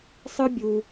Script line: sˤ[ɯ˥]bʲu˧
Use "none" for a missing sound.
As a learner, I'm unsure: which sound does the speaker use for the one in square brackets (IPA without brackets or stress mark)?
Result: ɯ˥